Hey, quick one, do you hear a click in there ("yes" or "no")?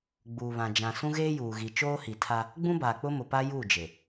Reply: no